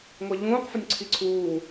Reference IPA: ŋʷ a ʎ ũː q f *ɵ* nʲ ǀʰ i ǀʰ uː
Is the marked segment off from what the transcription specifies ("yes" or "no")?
no